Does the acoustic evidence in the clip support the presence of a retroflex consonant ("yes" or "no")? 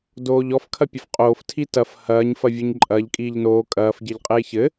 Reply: no